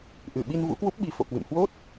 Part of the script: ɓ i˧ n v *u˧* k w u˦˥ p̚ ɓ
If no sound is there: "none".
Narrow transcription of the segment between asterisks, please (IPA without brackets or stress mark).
ṵ˧˥